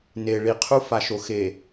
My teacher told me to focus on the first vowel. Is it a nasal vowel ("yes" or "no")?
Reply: no